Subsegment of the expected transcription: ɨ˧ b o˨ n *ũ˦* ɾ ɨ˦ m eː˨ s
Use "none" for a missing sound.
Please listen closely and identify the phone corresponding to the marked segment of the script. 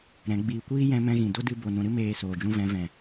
ũ˨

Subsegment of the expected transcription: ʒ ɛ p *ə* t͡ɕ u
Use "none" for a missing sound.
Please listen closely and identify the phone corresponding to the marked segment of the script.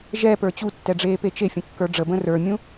ə˞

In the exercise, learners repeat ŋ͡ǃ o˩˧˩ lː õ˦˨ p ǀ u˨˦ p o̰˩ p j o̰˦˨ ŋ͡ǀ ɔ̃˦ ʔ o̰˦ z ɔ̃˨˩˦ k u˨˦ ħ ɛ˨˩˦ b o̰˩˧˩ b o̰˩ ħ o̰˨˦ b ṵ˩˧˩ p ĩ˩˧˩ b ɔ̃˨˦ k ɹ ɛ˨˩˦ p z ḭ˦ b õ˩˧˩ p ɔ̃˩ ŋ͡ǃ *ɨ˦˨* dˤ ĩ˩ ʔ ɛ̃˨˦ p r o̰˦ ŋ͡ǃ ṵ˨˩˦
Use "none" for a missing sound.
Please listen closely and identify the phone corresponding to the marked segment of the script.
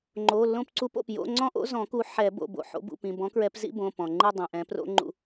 ɨ˦˨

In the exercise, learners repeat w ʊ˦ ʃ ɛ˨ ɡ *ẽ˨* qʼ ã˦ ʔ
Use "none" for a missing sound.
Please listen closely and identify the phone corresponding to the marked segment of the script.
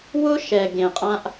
ẽ˨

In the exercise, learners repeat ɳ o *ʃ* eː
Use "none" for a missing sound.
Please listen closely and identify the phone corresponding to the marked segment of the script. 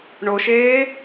ʃ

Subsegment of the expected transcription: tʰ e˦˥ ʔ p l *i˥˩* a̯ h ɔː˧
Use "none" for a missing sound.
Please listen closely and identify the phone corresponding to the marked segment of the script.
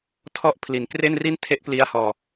i˦˥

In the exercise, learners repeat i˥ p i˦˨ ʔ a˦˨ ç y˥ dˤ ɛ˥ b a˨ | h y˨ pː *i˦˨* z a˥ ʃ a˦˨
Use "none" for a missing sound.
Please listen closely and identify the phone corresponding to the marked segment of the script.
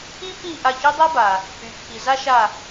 i˨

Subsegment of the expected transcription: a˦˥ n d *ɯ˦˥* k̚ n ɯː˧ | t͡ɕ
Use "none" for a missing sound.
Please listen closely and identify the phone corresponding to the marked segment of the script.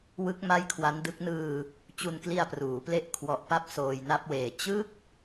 ɯ˦˥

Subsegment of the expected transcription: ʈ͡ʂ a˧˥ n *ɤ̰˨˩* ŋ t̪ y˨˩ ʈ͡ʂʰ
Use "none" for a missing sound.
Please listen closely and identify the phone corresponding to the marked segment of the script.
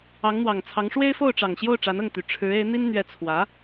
ɤ˥˩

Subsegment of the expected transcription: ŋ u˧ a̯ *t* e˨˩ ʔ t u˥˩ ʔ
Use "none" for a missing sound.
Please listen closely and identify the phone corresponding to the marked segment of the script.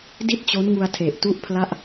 tʰ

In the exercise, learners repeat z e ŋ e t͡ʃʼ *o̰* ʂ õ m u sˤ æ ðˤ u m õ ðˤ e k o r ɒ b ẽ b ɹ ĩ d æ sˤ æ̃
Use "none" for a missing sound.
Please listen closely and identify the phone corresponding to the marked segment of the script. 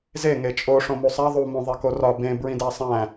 o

